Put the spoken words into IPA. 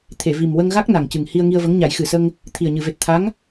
t̪ʰe˨˩˨vi˨˩mwə˧ŋɣa˦˥k̚ na˨˩ŋcɨ˨˩ŋ hi˧ə̯ŋi˧ə̯və˧˥ŋ ɲa˨˩˦jxɨ˨˩sə˧ŋ | t̪ʰi˨˩ə̯ɲɨ˨˩˨ve˨˩t̚ t̪ʰa˧˥ŋ

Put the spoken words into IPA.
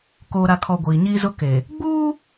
koː˨ɾa˨kʰɔ˨ ɡʷiː˨ɲiː˦zʊ˦ ke˨ | ɡ͡buː˦

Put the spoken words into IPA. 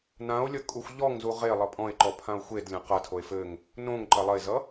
não̯lʲʌ kʼuxʷʎɔŋzu ʁe lˠʌpʼɔ̃e̯ǃɔ pʰão̯xʷedlʲɐ̃ qɐtʰoe̯ fɘŋ | nõŋ ǃɐlˠɐe̯zʌ

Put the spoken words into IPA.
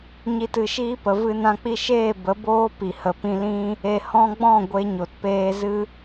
ɲi˨tɨ˨ʃiː˧pə˨ vɨ˧nã˧k͡pi˦ ʃeː˦˨bə˨˦boː˦ pi˨ hə˨pĩ˧lĩ˦ | e˨hɔ̃˧ɡ͡bɔ̃˦˨ ɡʷe˧ ɲo˨tpeː˧ zɨ˦

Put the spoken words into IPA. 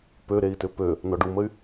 pøɾei̯tʏ pø | nɔɖuməy̯

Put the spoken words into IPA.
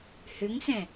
hʏŋsɛ̃

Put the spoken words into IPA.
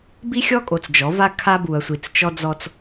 bi˦xʲɔ˦kʼo˨t͡s d͡ʒɔ˨˦va˦ kʰa˦bu˨ɐ̯sʷi˨t͡st͡ʃɔ˦ d͡zɔ˦t͡s

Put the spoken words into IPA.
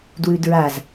dwʉdɹaz

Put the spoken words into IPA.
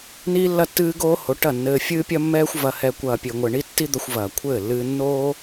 niː˧lːɐ˧tːɨː˧ɡoː˧ ho˨˦ʈɐ˦˨nːɘː˧ fʲɨː˦pʲɐ˦mːɛː˦xʷ vɐ˨hɛ˨ kʷɐː˨pʲɘː˨ŋʷɘ˨ ɳi˧tːi˧ d̪ɐ˧xʷvɐː˨kʷʰɘː˦˨ lːɨː˧nːoː˦

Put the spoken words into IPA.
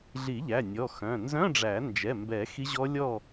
ɮi˨˩˦ʎæ˩˧˩ nʲɔ˩˧˩ xœ̃˩˧˩ nzœ̃˧˥˧ɖ͡ʐæ˨˩˦ nd͡ʒɛ˩˧˩mbɛ˨˩˦ xi˦˥ʑɔ˦˥lʲɔ˥˨

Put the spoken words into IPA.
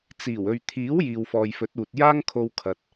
t͡siː˨˩wɵ˨ɥt̪ʰiː˨˥w jiː˨wfɔː˨jfɵ˨˥t̚ uː˨t̚ jaː˥ŋkʰo˧w kʰɐ˨t̚

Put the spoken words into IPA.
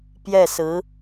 pjɛ˥˩sɹ̩˧˥

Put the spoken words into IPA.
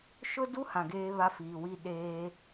ʃʊ˦du˦hã˨ ɡeː˦βa˦fiː˨wi˦ ɗeː˦

